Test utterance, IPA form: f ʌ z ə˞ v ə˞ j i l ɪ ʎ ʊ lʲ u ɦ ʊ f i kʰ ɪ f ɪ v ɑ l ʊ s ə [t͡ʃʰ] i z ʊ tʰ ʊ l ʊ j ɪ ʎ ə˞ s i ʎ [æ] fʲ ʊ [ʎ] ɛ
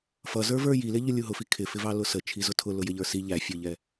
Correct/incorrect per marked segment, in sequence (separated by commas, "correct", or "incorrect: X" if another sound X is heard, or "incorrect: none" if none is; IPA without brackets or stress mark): correct, correct, correct